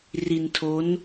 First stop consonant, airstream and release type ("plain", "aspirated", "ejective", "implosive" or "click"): aspirated